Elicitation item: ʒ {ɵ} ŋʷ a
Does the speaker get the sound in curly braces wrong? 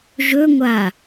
no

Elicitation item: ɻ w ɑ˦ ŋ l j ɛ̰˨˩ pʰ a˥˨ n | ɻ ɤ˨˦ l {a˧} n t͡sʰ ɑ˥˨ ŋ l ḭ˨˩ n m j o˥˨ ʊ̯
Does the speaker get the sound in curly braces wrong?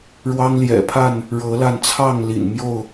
no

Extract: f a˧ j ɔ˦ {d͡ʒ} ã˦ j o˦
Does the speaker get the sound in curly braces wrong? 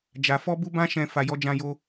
no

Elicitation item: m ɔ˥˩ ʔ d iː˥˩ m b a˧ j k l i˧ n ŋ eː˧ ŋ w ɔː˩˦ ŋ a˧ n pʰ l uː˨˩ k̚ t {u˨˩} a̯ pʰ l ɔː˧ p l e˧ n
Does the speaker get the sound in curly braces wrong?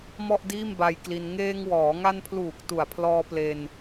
no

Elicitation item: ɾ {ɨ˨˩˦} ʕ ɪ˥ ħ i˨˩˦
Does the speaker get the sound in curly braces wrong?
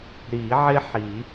yes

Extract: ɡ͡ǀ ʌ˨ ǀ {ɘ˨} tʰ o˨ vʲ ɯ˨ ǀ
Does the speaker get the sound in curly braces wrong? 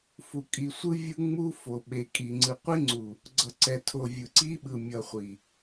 yes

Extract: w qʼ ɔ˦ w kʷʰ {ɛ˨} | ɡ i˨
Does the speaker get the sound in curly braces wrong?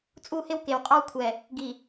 no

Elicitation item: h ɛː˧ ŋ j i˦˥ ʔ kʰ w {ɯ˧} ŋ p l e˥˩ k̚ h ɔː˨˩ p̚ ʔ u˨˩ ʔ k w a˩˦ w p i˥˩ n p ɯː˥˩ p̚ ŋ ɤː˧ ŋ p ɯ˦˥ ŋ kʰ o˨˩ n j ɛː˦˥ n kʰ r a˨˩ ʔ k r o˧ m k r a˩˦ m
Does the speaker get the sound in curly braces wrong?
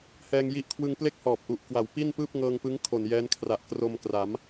no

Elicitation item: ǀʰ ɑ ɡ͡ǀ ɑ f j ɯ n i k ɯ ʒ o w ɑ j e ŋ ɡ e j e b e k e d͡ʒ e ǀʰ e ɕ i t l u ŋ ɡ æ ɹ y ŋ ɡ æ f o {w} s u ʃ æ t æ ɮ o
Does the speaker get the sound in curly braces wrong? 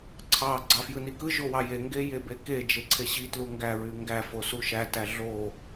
yes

